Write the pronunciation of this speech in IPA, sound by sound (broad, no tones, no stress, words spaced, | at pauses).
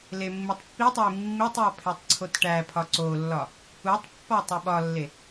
lemːitˤpːitˤoi̯ mːitˤjɒ pʰetˤǀʰotʈæpʰɒ ǀolːɒ | utˤpːɒ tˤeɓɒlːe